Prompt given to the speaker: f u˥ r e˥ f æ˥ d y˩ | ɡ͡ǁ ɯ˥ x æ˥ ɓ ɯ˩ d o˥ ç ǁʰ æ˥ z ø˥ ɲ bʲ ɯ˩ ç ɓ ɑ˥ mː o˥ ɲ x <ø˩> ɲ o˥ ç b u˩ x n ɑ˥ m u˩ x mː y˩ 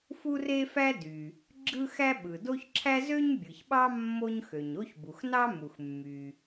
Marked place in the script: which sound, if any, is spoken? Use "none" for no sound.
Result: ø˩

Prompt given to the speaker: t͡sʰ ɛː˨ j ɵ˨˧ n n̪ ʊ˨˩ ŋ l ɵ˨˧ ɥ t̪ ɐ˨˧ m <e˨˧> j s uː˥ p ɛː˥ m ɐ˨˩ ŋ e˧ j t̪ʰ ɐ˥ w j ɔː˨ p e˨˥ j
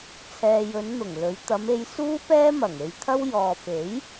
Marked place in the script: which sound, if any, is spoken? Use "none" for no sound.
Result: e˨˧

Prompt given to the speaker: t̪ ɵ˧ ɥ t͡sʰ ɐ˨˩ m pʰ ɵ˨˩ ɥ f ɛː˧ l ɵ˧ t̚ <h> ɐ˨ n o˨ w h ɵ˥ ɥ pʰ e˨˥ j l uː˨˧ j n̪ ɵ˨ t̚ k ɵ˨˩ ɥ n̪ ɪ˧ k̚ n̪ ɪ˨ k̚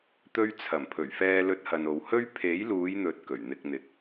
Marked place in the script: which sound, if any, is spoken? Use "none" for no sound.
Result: h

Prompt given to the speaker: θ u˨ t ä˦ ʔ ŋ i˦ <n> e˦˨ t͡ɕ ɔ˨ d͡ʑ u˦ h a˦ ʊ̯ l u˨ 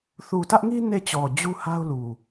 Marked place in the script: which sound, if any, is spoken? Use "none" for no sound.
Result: n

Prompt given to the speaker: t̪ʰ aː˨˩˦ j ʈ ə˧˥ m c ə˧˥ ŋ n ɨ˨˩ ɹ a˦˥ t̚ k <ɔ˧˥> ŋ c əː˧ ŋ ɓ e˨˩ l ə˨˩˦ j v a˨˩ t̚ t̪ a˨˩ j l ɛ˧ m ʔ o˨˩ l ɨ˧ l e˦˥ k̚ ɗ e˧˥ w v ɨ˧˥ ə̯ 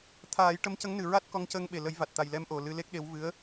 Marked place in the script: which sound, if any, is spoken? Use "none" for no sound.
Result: ɔ˧˥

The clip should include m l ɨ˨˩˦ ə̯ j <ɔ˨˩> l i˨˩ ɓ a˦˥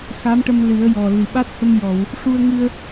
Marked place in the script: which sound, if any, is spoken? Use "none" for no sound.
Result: ɔ˨˩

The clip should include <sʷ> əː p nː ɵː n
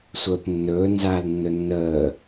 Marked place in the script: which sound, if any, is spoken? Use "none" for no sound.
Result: sʷ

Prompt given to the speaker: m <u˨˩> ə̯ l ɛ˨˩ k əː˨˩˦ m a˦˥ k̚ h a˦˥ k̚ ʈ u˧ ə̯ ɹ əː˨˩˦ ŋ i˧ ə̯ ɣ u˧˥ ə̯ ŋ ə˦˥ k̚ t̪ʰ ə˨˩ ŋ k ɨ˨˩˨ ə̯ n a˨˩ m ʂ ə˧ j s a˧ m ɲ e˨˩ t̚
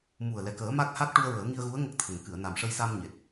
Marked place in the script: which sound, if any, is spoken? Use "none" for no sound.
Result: u˨˩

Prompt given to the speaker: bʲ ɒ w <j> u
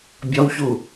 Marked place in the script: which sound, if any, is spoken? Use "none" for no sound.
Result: ç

